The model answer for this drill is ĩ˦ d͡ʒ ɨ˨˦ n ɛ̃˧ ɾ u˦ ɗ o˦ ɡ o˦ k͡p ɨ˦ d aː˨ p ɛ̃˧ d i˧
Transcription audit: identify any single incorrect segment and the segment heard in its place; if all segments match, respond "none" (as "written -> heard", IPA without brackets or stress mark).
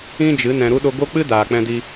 p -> k͡p